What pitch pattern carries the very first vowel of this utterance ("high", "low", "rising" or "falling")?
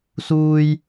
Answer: high